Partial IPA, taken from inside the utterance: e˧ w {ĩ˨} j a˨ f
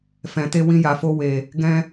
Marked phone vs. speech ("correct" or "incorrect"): incorrect